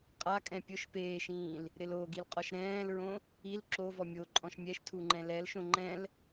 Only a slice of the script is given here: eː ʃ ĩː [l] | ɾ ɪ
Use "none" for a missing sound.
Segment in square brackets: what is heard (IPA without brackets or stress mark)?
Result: l